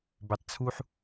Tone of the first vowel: low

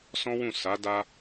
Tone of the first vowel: high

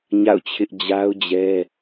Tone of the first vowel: falling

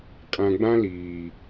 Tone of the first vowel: low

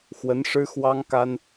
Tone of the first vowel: rising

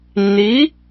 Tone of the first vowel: rising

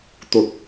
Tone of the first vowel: low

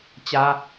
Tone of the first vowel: high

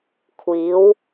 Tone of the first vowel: rising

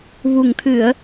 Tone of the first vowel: low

